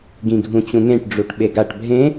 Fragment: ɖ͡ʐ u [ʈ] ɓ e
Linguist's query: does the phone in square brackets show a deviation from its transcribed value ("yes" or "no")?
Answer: no